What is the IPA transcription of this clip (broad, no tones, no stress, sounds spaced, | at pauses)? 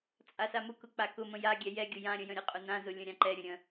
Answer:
t͡sʼ a s a m ʊ k ʊ k͡p a k ʊ m ə̃ j a ɡʲ ɛ j ɛ ɡʲ ʊ j ã ɾʲ ə̃ j ə̃ ɾʲ ʊ qʼ ʊ n ã z ʊ lʲ ə̃ ɾʲ ã ǃ ɛ ɾʲ ə̃ ɾʲ ə̃